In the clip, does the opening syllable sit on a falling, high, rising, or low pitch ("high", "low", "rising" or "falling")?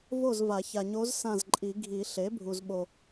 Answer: falling